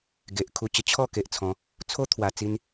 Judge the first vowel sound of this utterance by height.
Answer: mid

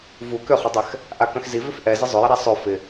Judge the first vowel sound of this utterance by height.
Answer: high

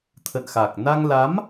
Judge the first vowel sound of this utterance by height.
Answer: mid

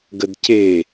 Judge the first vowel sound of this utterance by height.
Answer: mid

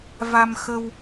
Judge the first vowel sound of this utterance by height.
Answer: low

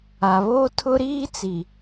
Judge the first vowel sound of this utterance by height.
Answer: low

